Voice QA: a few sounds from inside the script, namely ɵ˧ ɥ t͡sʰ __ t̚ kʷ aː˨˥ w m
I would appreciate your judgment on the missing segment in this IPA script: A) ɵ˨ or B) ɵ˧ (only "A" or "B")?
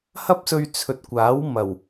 A